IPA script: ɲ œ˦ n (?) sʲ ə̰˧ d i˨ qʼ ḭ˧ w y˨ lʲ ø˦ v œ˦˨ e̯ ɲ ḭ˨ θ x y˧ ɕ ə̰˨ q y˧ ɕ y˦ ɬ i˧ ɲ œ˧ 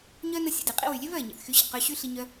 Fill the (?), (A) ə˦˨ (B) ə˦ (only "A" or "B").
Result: B